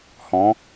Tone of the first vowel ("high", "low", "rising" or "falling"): rising